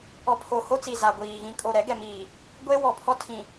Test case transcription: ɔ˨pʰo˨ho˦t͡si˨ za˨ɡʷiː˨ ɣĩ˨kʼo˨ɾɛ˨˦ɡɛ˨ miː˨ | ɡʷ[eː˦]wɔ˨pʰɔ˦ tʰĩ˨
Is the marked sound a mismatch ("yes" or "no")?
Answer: no